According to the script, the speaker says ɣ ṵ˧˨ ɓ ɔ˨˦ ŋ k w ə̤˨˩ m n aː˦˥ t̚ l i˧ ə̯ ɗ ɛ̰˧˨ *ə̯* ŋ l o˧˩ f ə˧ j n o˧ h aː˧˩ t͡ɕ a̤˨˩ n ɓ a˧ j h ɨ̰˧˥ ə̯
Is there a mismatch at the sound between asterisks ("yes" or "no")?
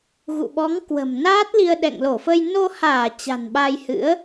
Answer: yes